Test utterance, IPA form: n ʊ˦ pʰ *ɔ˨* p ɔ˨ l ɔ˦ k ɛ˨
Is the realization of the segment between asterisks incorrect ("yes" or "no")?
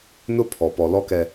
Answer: no